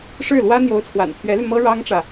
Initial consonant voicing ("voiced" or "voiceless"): voiceless